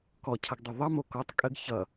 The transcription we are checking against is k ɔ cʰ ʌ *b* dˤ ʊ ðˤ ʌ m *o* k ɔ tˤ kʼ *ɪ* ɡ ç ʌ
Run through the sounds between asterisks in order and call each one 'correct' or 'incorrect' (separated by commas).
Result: incorrect, correct, incorrect